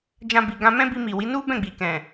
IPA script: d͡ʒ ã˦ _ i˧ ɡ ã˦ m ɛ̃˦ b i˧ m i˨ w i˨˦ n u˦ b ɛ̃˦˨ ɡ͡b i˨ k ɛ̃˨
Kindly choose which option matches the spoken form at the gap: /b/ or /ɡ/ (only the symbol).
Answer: b